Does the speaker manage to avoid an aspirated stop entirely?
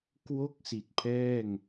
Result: no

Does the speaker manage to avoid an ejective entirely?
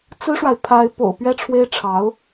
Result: yes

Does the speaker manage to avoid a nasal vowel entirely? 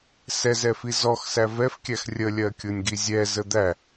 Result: yes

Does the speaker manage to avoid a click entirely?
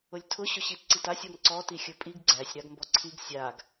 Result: no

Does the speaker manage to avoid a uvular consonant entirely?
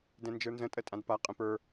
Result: no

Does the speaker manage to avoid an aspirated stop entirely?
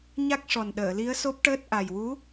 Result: yes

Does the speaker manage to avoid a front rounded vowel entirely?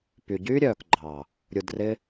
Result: no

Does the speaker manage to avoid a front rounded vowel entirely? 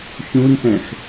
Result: yes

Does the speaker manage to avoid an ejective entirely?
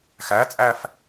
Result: no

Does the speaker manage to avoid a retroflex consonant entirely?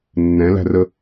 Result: yes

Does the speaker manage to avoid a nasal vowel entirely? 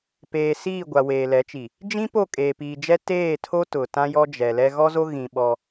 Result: no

